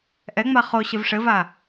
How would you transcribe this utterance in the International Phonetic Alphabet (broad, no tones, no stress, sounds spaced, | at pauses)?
ʔ ɛ ŋ͡m a χ o ɕ ɨ v ʂ ɘ v a